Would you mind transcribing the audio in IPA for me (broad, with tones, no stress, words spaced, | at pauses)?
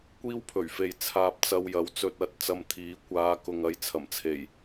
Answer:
kʷiː˥wpʰɵ˨˩ɥfe˨j t͡sʰaː˧p̚t͡sɐ˧w jɐ˨˥wt͡sɵ˧t̚ ɐ˨˥t̚ t͡sɐ˧mt̪ʰiː˨˥ kʷaː˨˧ kʊ˨ŋɐ˨˧j t͡sʰɐ˨˩mt͡sʰe˨˩j